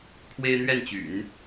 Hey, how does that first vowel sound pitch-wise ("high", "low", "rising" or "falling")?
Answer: high